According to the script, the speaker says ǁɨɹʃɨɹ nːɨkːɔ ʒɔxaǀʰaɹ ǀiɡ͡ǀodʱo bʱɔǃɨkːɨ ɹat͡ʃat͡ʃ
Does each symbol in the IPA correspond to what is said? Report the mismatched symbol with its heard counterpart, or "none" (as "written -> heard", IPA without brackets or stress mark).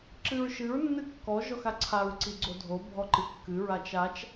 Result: none